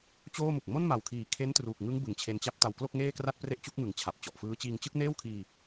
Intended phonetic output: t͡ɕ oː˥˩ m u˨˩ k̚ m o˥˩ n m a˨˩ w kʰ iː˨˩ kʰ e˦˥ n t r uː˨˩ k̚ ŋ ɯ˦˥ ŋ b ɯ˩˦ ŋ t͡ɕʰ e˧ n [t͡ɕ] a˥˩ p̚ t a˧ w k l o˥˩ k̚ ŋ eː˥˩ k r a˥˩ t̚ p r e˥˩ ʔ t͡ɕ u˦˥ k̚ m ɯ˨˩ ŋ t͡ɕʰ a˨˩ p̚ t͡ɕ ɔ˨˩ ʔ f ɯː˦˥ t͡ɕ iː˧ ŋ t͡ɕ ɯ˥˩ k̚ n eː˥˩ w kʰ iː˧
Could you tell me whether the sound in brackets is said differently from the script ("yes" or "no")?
no